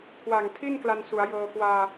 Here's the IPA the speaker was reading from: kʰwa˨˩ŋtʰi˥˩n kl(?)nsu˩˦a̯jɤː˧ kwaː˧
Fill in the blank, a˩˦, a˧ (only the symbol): a˧